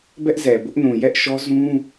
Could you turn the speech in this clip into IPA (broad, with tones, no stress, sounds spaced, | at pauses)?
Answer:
b ɛ˦ ʔ z ɛ˨ b ʊ˦ ʔ n ũ˨ j ɛ˦ ʔ ʃ ɔ˦ z ũ˦